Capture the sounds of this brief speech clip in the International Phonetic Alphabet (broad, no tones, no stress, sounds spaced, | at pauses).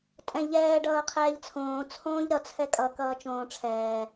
tʼ ɛ̃ ʎ ɛː ɖ ʌː qʰ ɛː ʎ t͡sʰ õː t͡sʰ õː ʎ ɾ ʌ t͡sʰ ɛ kʼ ʌ k ʌː t͡ʃ õː ʈ͡ʂʰ ɛː